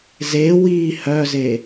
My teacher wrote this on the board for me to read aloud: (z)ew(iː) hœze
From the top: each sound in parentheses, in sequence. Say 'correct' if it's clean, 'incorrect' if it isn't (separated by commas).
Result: correct, correct